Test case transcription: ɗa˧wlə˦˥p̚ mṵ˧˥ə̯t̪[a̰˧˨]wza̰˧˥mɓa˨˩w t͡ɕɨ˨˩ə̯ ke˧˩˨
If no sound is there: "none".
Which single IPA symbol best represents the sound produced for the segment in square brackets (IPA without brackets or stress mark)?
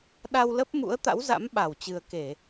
a̰˧˥